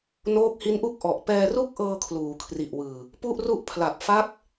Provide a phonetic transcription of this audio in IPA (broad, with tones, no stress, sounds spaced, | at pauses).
n oː˦˥ k̚ h i˦˥ n ʔ u˥˩ k̚ ʔ ɔ˨˩ ʔ p ɛː˧ r u˥˩ k̚ ʔ ɤː˧ kʰ l uː˩˦ kʰ r i˨˩ ʔ w ɯː˨˩ | p u˥˩ ʔ r u˥˩ ʔ pʰ l a˨˩ p̚ f a˦˥ k̚